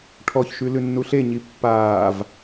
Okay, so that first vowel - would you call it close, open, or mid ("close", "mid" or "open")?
mid